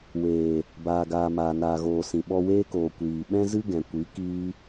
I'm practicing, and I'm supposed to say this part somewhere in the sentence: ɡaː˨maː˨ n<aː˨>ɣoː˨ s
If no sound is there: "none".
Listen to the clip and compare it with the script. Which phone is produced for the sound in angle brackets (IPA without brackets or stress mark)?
aː˨